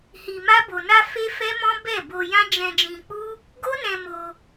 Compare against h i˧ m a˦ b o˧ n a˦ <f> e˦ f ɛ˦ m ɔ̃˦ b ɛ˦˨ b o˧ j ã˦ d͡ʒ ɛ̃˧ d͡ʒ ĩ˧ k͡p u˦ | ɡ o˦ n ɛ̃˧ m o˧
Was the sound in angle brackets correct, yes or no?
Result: yes